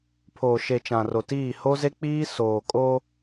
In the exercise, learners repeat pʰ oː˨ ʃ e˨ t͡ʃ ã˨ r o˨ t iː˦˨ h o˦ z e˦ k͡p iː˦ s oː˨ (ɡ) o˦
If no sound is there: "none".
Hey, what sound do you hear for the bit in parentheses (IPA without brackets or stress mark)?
kʼ